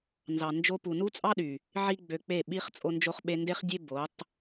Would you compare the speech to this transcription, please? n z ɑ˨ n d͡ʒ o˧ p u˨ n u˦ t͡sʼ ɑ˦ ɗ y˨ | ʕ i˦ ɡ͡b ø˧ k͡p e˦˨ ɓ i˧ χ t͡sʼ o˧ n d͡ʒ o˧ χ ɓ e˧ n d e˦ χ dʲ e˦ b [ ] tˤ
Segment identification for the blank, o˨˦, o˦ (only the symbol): o˨˦